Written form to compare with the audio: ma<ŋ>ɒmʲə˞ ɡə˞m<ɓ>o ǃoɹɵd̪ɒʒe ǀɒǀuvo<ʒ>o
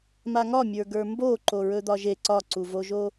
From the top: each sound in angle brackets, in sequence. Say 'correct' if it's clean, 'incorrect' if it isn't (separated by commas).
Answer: correct, incorrect, correct